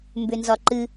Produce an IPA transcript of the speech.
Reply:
m b ʏ n z ɒ ǃ ɨ

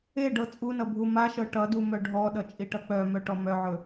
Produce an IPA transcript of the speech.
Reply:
e ɖ ɤ t͡sʼ u n ʌ bʱ u m a ʃ ɤ ʈ ʌ d u m œ ɖʱ ɔ ɗ ʌ t͡ʃʼ i ʈ ʌ k͡p œ m œ ʈ ɔ m œ ʕ ɵ

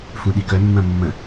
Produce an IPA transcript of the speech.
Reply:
f ũ ɗ i k œ mː ɐ̃ mː ə̃

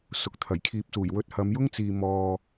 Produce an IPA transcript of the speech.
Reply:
s ʊ˨˥ k̚ t̪ʰ ɐ˨˩ j kʰ iː˧ p̚ s uː˨˩ j w ɵ˧ t̚ h ɐ˨˧ m j ʊ˥ ŋ t͡s iː˨ m ɔː˨

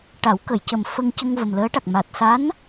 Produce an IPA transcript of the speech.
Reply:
ʈ a˨˩˦ w k ə˨˩˨ j c ə˨˩ m f ə˧ ŋ c ə˧ ŋ v ə˨˩ m l əː˧˥ ʈ a˨˩ k̚ m a˨˩ t̚ s a˧˥ n

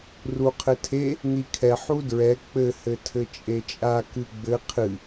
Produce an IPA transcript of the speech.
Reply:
r u qʰ ɘ tʰ e | n̪ i kʰ ɛ ħ u d ɹ ɛ k͡p ɘ h ɘ tʰ ɘ t͡ʃʼ e t͡ʃʼ a k ɨ ɡ͡b ɘ qʰ ɨ

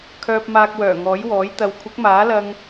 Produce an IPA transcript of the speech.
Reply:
kʰ œː˧ p̚ m aː˧ k̚ w œː˨˩ ŋ ɔː˨˥ j w ɔː˨˥ j t̪ ɐ˨˧ w kʷʰ ɪ˨˥ k̚ m aː˨˥ l ɐ˧ ŋ

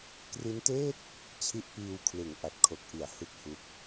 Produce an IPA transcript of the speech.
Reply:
k r i˦˥ n t eː˥˩ t̚ | t͡ɕʰ i˦˥ ʔ p iː˧ w kʰ l ɯ˩˦ ŋ ʔ a˨˩ t̚ kʰ o˨˩ k̚ ʔ i˩˦ a̯ h ɯ˦˥ k̚ h u˦˥ k̚

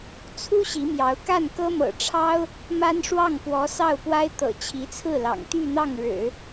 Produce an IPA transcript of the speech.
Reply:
t͡sʰ u˥ ɕ i˧˥ m j ɑ˧˥ ʊ̯ k a˥˩ n k ɤ˥ m ɤ̰˨˩ ʈ͡ʂʰ ɑ˥ ʊ̯ | m a˥ n ʂ w ɑ˥˩ ŋ p w ɔ˧˥ s ɑ˥˩ ʊ̯ p w a˥ ɪ̯ t̪ ɤ̰˨˩ t͡ɕʰ i˧˥ t͡sʰ ɹ̩˥˩ l ɑ̰˨˩ ŋ t̪ y˥˧ n̪ ɑ˥˩ ŋ ɻ ɻ̩˨˩˦

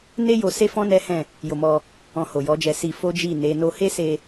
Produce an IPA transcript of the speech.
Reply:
n e˦ j o˧ s e˦ f ɔ̃˦ n ɛ˦ h ɛ̃˦˨ | j o˧ m ɔ˧ | ɔ̃˧ h o˨ j ɔ˨˦ d͡ʒ ɛ˧ s i˧ f o˦ d͡ʒ i˦˨ n e˨˦ n o˦ h e˦ s e˧

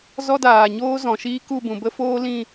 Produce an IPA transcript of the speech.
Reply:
z ɔ˦ d aː˨ ɲ oː˦ z ɔ̃˨ ʃ iː˦ k u˦˨ b ũ˨ b ə˦ f oː˦ l ĩ˦˨

